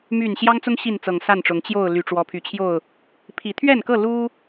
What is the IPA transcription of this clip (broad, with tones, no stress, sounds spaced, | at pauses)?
m y˥˨ n ɕ j ɑ˦ ŋ t͡s ʊ˦ ŋ ɕ i˥˨ n t͡s ɤ˨˩ ŋ s a˥˨ n ʈ͡ʂ ʊ˨˦ ŋ t͡ɕ j o˥˨ ʊ̯ l y˨˩ ʈ͡ʂ w ɔ˨˦ pʰ y˨˩ t͡ɕʰ j o˥˨ ʊ̯ | pʰ i˨˦ t̪ʰ ɥ ɛ˥˨ n k ɤ˥˨ l u˦